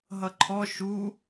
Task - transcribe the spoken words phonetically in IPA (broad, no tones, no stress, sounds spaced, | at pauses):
ɦ ʌ ǃʰ ɔ ʃ u